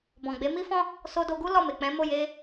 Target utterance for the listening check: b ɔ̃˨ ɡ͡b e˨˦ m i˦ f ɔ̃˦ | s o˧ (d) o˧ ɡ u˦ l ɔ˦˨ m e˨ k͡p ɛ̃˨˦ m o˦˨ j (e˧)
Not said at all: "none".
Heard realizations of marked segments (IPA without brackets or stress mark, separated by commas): d, e˧